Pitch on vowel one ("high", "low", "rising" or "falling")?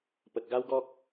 low